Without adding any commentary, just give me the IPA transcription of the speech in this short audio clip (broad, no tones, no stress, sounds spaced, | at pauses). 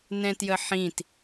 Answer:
n ɛ̃ t j ə ħ ĩ t